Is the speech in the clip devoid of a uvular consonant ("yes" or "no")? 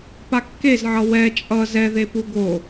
yes